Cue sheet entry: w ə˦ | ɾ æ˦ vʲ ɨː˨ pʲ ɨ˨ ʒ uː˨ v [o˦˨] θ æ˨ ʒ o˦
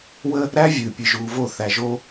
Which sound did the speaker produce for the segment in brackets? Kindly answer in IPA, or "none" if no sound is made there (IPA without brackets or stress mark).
o˦˨